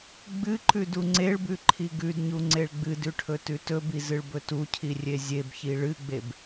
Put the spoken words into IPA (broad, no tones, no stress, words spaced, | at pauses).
ɡ͡bɨǃʉ duŋ͡ǀeɭbʉ ǃʰiɡʉdɲu ŋ͡ǀeɭɡ͡bɨdʉ ʈʰɵtʉtɵbi zɨɭbɵtucʰi rʲezʲebçi ɭɨɡ͡beb